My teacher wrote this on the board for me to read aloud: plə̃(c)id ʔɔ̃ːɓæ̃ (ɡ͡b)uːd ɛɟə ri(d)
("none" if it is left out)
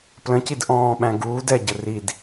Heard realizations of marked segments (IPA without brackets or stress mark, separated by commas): c, ɡ, d